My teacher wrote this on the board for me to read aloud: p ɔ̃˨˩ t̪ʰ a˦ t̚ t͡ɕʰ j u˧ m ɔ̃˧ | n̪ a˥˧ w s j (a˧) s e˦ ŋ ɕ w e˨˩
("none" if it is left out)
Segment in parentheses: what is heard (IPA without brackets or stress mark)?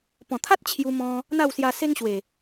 a˧